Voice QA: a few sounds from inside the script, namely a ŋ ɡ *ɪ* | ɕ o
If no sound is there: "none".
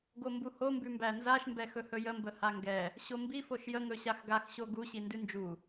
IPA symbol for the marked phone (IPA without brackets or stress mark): ɛ